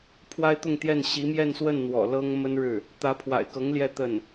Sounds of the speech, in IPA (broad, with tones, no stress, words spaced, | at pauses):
pʰwa˥ɪ̯t̪ʊ˥˧ŋt̪jɛ˥˩n ɕi˧˥mjɛ˥˧nswə˥˩n n̪wɔ̰˨˩lɤ˥ŋmə˥nɻɻ̩˥˩ | t̪ä˧˥pʰwa̰˨˩ɪ̯kɤ˧˥ŋ ljɛ˥˧t̪ə˥˩n